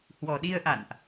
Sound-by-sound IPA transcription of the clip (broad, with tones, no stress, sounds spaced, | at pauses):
h w ɔ˨˩ ɗ i˧ ə̯ ʔ a̰˧˨ n ʔ